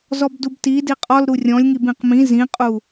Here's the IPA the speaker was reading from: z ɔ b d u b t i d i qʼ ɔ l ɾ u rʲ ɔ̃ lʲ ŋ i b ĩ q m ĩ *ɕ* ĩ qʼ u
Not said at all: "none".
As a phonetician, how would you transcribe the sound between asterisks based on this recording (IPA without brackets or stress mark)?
z